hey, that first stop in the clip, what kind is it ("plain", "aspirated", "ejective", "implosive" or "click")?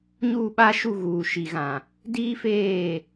implosive